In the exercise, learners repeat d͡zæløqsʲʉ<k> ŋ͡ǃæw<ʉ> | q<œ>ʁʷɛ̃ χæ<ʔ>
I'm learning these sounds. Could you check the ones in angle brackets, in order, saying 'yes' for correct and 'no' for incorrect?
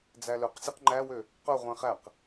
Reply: no, no, yes, no

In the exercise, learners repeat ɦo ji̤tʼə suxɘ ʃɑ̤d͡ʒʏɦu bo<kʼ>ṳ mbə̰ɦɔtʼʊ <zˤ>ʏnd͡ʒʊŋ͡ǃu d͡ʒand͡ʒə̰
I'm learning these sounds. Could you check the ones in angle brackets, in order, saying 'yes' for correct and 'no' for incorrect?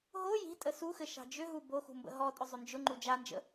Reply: no, yes

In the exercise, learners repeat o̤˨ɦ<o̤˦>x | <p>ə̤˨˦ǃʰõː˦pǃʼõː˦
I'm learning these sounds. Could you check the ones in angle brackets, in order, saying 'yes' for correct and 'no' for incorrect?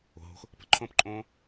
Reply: yes, yes

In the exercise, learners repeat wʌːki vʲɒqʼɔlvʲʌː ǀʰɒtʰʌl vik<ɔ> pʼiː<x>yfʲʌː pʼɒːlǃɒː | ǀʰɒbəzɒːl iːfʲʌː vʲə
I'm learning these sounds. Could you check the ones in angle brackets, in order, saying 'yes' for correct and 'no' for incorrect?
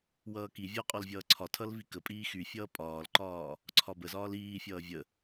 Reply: no, yes

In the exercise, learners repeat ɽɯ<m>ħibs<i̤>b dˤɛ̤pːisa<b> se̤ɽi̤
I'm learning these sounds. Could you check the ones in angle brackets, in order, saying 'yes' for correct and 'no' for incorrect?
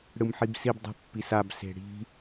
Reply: yes, no, yes

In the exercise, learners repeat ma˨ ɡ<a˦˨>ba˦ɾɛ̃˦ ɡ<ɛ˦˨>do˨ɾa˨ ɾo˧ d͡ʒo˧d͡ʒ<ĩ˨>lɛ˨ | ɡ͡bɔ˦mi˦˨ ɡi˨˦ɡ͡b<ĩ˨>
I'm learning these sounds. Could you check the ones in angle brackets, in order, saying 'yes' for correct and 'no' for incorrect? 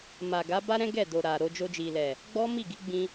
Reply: no, yes, no, no

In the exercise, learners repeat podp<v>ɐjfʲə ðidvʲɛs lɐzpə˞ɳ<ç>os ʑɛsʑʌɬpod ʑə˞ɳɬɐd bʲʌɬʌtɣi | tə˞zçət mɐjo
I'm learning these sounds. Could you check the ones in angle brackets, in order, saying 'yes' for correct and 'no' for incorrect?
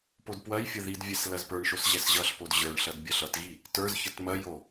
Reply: no, no

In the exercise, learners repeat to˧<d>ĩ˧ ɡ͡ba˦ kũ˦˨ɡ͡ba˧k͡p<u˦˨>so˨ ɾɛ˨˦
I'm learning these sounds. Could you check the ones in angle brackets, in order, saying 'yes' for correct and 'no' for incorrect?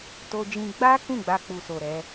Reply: no, no

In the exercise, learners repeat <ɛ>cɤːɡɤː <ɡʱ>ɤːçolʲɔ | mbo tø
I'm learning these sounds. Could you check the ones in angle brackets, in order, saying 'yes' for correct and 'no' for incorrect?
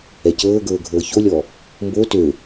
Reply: yes, yes

